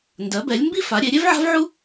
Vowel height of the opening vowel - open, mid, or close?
mid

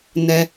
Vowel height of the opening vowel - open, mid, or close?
mid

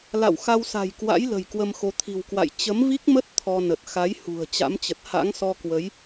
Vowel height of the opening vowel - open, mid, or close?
open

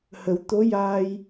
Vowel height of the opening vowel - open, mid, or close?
mid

